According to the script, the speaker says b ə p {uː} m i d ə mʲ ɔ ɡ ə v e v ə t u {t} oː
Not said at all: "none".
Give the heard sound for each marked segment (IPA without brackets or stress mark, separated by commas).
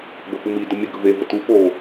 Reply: u, p